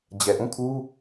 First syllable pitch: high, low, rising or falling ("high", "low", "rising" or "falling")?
low